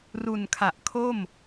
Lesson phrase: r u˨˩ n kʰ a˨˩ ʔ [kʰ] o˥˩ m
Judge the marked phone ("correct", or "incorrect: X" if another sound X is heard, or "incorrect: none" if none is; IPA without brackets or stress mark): correct